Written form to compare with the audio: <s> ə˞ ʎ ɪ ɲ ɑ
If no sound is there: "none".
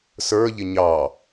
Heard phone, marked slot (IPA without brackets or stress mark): s